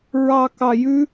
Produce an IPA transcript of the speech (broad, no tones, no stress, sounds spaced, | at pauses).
ɹ ɑ k ɑ j ʉ